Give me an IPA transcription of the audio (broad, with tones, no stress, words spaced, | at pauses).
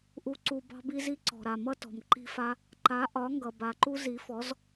ʔu˧ǀu˧ bɑ̤˦bi˦zi˦ ǀɔ̤˨ɾa˨mʌ˦tɔ̤˨m ǃi̤˦fa˦ | ǃa˨˦ʔɒ˨˦ŋɡʌ˨ ba˨ǃu˦ zi˨˦fɔ˨˦z